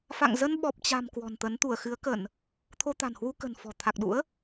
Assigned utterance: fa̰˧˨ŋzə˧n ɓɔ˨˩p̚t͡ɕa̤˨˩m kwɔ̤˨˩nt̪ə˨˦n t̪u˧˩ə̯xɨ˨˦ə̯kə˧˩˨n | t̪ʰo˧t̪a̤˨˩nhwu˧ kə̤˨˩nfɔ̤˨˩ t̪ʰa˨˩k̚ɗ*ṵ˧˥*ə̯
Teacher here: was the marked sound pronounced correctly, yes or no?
yes